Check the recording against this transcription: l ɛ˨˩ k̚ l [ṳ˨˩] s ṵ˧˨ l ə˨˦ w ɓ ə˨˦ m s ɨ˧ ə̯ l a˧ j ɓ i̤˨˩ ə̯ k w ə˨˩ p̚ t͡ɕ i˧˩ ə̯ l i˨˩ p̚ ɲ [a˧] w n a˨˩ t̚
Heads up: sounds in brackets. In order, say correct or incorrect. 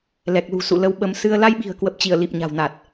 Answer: correct, incorrect: a̤˨˩

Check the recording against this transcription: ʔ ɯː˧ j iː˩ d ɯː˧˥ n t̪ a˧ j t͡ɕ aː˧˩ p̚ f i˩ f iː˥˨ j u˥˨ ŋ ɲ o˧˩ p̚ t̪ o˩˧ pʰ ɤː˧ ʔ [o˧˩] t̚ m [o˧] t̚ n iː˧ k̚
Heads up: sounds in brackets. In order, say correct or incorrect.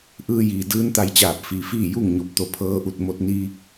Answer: incorrect: u˧˩, correct

